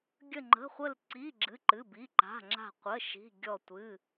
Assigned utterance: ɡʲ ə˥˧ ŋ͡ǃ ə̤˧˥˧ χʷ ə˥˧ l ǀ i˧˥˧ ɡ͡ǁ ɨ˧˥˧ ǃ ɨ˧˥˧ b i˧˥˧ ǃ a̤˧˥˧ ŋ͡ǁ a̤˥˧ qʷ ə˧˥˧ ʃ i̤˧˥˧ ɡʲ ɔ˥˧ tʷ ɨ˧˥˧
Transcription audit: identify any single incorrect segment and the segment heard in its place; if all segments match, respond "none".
none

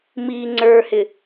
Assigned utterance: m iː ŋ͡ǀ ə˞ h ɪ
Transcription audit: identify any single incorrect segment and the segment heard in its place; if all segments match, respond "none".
none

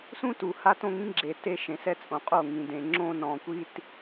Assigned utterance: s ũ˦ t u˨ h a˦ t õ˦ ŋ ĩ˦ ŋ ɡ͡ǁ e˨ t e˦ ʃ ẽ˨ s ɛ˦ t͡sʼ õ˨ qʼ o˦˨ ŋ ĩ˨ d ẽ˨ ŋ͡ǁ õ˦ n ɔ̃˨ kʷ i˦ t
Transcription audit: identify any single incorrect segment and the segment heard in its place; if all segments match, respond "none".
none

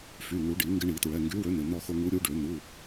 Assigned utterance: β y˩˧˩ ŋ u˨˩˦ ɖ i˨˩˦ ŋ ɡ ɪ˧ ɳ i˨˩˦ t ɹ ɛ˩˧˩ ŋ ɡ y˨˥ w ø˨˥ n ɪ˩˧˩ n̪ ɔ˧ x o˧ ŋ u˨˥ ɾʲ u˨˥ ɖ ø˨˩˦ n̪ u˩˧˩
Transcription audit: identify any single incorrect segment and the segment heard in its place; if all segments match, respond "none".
β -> f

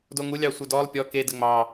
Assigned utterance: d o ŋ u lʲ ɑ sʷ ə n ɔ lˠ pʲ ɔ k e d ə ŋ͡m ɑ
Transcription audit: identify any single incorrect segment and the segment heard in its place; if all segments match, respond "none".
n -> d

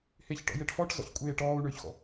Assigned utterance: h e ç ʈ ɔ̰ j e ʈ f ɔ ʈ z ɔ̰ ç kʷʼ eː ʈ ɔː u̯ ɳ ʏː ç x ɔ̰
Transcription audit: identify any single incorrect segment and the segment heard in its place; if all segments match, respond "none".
none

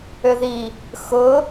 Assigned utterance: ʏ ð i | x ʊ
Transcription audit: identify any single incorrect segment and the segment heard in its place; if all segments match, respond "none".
none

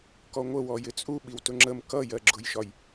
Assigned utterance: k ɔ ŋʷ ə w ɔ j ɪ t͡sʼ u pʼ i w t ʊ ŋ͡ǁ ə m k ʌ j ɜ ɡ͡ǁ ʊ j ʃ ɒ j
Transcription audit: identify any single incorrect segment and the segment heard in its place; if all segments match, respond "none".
pʼ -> ɓ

